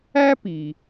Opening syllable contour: high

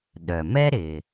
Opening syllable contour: low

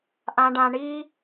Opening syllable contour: high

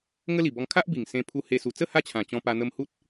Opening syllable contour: high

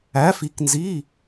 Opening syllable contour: rising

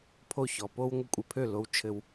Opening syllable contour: falling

